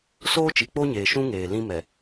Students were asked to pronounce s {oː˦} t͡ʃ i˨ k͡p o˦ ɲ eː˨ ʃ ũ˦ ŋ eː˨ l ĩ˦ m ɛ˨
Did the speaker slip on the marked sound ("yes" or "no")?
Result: no